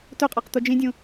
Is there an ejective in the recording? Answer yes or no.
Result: yes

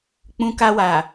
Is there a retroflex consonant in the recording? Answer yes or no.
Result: no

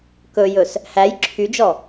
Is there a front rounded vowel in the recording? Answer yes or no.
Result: yes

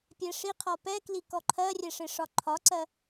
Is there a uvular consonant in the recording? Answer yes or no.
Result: yes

